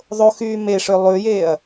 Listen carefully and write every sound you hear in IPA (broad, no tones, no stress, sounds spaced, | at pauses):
ðˤ o x yː m e ʂ ø lˠ ʉ j eː ɐ̯